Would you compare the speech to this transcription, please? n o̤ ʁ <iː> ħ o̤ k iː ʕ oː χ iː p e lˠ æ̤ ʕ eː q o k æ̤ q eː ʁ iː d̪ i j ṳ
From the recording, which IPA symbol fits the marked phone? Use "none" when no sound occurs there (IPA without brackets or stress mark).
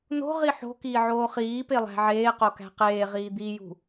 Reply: i